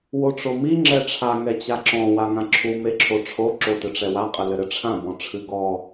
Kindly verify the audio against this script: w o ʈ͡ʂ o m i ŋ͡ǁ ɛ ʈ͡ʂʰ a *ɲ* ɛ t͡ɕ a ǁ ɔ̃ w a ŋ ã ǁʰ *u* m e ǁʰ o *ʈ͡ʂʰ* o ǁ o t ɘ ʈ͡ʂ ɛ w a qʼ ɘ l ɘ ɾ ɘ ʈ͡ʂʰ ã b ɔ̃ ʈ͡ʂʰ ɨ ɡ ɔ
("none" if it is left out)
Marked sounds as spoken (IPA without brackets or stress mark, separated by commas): ŋ, u, ʈ͡ʂʰ